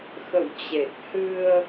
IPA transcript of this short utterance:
xə̰˧˨wt͡ɕe˨˩k̚hɨ˧ə̯

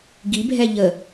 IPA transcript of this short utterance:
ɡibʱɛ ʎə

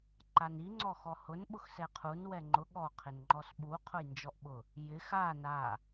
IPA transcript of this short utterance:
ǃani ŋ͡ǀɔxɔhʊn ɓʊxsɛqʰun wɛŋ͡ǃʊ ɠɔ qʰɪnŋ͡ǃɔsɓu qʰʊjnd͡ʒɔʔɓʊ | jɪx a na

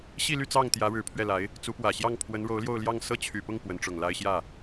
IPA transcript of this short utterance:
ɕi˥˧ly˥˧ t͡sɑ˥˩ŋt̪jä˧˥ɻɻ̩˨˩ pʰɥɛ˥˩la˧˥ɪ̯ | t͡su˧˥pwä˨˩ ɕjɑ˥˩ŋpʰwə˧˥nɻo˧˥ʊ̯ ljo˥˧ʊ̯ljɑ˥˧ŋ sɤ˥˩t͡ɕʰy˨˩pʊ˥˩ŋ pwə˧˥nʈ͡ʂʊ˨˩ŋla˥ɪ̯ ɕjä˥˩

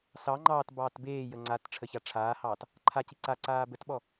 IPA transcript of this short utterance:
sɑ ŋ͡ǃɑːt bɑːtbeːjə ŋ͡ǀat ʈ͡ʂʰəçaʈ͡ʂʰaːhɑːt | ǃʰaci ǀaǀaː bətɓɔ

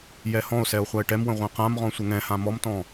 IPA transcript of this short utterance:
jɛhɔ̃o̯sɛo̯ χʷae̯ʈɛmwə̃ ʁʷɛ̃qãmʁɔ̃ sʷəŋɛ̃hã mɔmtɔ̃

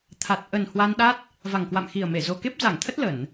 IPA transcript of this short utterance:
t̪ʰa˨˩t̚ ʔə˨˩n hwa˧nɗa˦˥t̚ | va˨˩ŋkwa̰˧˨mxi˨˩ə̯me˧˩ zo˨˩ke˦˥p̚za˧˩ŋt̪ʰə˦˥t̚ lə˧˩˨n

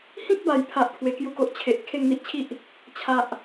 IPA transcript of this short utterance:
hĩ˦k̚ba˨˩jpʰa˨ʔ kʰwe˧kju˥˧ko˦ʔ t͡ɕʰe˨ʔ kʰe˥˧ŋn̪i˦ʔt͡ɕʰi˦ʔ | t͡ɕʰa˨ʔ

